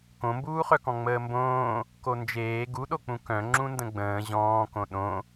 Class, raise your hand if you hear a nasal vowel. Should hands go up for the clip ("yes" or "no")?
yes